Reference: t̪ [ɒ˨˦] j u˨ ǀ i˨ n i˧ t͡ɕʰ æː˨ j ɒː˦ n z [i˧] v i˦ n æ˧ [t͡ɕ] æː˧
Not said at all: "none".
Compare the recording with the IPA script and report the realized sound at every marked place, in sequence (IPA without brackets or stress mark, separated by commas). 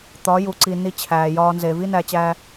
ɒ˨˦, e˧, t͡ɕ